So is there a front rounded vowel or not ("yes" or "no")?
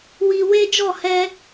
no